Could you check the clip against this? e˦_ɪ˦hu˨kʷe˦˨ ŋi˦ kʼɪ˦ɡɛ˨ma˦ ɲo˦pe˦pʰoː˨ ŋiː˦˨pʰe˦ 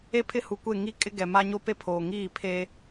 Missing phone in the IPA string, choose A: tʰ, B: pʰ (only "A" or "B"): B